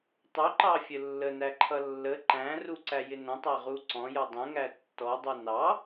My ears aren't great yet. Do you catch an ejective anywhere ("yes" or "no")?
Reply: no